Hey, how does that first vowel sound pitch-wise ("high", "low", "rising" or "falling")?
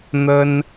high